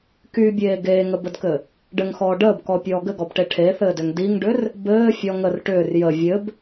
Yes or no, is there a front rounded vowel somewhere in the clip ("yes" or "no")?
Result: yes